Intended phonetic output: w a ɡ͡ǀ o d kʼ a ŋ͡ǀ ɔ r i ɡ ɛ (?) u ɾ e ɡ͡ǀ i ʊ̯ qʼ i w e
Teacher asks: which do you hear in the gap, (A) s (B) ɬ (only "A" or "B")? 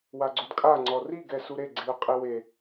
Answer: A